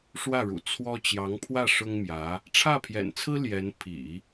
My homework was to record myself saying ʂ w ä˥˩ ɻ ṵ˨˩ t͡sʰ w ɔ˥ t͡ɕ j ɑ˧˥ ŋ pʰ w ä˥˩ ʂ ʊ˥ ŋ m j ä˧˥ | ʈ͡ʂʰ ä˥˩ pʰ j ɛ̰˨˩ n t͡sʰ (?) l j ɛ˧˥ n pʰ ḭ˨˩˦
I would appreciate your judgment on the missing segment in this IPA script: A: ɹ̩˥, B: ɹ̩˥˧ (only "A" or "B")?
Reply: A